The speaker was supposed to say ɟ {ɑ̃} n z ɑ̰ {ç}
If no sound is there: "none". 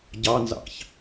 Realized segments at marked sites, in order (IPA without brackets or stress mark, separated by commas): ɑ, ç